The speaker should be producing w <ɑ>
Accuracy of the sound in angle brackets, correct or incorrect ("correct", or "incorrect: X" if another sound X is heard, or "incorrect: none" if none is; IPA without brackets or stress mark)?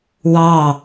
correct